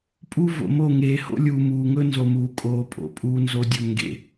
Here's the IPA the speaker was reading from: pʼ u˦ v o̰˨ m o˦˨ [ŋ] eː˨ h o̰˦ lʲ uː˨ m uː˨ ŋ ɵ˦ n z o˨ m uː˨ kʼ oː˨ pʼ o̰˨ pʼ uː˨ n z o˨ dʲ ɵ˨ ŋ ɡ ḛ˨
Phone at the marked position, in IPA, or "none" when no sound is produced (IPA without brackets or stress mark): ŋ